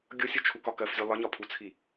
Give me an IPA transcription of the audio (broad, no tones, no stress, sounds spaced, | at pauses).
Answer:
ɡʲ ʊ sʲ ʊ t͡ʃʰ u k ɒ k ɜ f zʲ u lˠ ə ɲ ɒ pʰ u t͡sʰ i